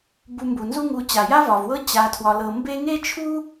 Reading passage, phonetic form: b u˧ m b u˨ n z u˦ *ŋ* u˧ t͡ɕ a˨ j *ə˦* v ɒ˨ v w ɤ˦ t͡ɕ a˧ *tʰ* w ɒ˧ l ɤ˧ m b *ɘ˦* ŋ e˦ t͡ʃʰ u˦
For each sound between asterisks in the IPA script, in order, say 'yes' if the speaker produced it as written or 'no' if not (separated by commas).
yes, no, yes, no